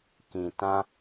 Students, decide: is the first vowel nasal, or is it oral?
nasal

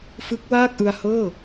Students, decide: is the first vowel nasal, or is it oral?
oral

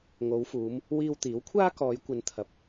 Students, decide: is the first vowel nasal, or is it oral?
oral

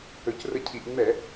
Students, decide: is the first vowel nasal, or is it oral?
oral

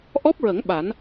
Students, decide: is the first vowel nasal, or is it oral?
oral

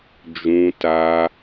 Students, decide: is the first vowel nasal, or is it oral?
nasal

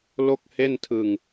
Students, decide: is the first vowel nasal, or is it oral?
oral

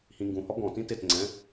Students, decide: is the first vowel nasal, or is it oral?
nasal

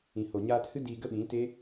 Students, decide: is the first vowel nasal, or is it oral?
nasal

